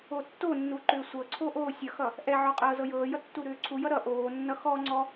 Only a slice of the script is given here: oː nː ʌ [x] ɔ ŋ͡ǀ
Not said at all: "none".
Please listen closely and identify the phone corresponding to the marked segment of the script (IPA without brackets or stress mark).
x